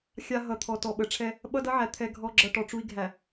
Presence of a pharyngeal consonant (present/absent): present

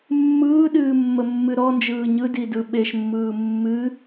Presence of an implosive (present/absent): present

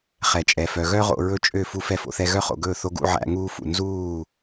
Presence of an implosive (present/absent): absent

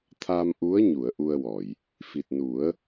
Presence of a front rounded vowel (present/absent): absent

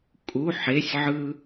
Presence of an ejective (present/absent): present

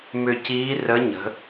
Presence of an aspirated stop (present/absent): absent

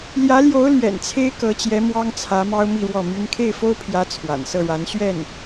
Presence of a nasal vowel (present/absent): absent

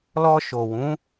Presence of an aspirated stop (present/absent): absent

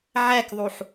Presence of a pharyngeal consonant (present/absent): present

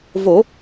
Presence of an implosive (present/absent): absent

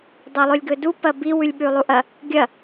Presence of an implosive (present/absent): present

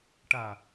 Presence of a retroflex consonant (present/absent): present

